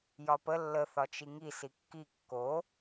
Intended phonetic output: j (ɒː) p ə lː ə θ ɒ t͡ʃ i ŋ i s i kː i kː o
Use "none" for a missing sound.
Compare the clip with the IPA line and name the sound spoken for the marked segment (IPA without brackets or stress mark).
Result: ɒ